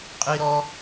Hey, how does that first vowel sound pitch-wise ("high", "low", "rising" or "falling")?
high